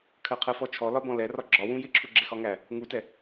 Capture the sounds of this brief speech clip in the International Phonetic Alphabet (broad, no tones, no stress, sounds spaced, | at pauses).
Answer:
kʰ ɜ qʰ ɜ f ɔ t͡ʃʰ ɔ l ɒ b ɔ̃ l ɛ r ɒ ɡ͡ǁ ɒ w ũ j ɪ ǁʰ u ɡ͡ǁ ɪ x ɒ ŋ æ | ŋ u t ɛ